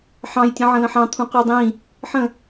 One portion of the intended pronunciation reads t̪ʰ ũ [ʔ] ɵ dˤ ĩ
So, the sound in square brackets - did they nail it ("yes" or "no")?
no